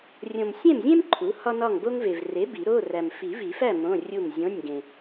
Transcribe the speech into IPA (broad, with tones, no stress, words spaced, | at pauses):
rʲõ˨msʲẽ˥˨mzʲẽ˥m ǃʰu˩˥hɒ˥nɒ˥˨ŋ bo˥ŋve˨v re˩˥ bi˨˩˦ɾo˧˥˧ræ˨m fi˨˩˦vi˨˩˦fæ˥˨ mõ˧˥˧rʲu˥˨m zʲõ˧˥˧nʲ ɡẽ˨